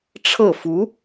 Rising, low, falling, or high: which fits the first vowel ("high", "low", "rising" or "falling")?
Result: falling